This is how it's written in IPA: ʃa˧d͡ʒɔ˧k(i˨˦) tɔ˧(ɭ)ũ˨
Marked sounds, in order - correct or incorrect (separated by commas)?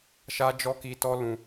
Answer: incorrect, incorrect